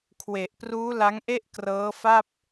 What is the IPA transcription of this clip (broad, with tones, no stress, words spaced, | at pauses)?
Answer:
kʰwe˨˩ʔpruː˦˥ la˦˥ŋʔe˥˩ʔ krɤː˦˥fa˥˩p̚